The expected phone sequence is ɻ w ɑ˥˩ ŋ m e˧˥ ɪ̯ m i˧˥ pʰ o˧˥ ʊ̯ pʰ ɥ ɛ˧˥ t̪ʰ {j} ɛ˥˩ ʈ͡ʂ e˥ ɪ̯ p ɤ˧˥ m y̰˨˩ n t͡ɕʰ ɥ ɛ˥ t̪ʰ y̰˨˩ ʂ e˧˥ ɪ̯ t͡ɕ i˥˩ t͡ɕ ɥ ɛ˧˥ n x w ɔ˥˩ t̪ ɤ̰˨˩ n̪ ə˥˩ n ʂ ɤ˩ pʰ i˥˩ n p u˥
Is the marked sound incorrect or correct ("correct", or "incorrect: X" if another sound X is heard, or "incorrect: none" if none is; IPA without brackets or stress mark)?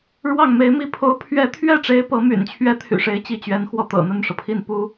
incorrect: ɥ